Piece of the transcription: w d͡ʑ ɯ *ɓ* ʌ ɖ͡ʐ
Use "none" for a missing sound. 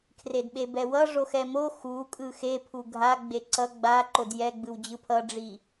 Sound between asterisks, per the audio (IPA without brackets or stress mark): pʰ